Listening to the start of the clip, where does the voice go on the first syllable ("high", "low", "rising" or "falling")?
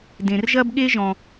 low